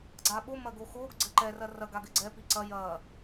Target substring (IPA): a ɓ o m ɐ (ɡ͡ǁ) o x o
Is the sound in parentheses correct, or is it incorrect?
incorrect